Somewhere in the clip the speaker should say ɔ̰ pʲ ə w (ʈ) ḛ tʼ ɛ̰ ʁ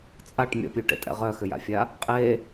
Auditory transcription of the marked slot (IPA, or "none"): ʈ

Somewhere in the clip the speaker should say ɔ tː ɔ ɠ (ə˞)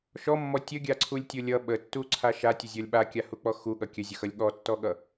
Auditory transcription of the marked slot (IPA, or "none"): ʌ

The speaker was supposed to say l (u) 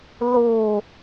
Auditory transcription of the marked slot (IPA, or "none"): u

